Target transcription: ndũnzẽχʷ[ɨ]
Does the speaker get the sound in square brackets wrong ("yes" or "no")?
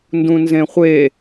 yes